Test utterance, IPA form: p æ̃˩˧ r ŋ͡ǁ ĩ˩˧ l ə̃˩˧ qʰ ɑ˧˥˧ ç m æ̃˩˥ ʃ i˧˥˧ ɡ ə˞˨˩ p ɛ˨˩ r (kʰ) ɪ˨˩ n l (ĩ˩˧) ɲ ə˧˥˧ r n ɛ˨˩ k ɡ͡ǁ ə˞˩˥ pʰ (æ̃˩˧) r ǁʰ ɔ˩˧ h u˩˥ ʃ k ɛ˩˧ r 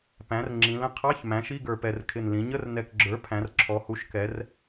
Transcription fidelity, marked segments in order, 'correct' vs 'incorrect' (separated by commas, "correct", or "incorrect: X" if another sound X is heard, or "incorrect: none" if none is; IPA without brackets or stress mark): correct, correct, correct